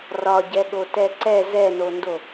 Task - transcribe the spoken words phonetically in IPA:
r ɒ ɟ ɛ ɠ o t ɛ ǀ ɛ z ɛ n o n d o

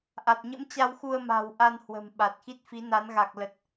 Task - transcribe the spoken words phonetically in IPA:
ʔ a˨˩ t̚ ɲ ə̰˧˥ m t͡ɕ a˧ w x u˧ ə̯ m a̤˨˩ w ʔ a˧ n h w ə̤˨˩ m ɓ a˨˩ t̚ x i˦˥ t̚ f i˨˦ n a˨˦ n ɣ a˨˩ k̚ l ə˨˩ t̚

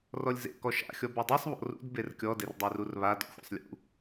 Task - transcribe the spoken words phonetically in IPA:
r ɔ lʲ z ḛ k ɔ ʃ a̰ xʲ ɔ b u dˤ i sˤ β ɔ̰ r ṵ d b e r kʲ ɔ d e r dˤ u r u r β a d ɔ̰ xʷ ḛ sˤ lʲ ṵ

